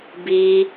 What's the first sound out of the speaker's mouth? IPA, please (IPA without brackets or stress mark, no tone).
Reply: b